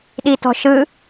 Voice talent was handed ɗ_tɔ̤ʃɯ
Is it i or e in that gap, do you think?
i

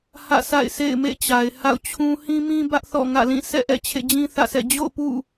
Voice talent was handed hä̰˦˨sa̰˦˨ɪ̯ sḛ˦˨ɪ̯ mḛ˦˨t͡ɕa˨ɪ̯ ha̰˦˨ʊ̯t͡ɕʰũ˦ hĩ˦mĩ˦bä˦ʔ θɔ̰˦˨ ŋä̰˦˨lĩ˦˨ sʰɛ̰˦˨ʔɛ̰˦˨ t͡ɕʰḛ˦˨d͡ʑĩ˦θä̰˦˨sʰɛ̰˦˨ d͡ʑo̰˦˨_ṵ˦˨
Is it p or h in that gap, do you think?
p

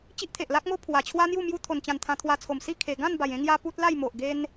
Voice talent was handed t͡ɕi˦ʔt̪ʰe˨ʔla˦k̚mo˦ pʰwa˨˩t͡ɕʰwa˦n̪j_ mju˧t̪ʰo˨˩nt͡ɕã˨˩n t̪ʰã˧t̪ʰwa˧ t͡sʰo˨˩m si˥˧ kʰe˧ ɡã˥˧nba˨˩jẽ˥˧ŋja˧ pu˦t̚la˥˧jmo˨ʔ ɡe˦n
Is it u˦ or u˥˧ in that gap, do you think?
u˥˧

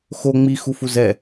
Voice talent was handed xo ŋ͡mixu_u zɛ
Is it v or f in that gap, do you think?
f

